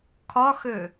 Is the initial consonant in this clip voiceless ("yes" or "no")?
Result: yes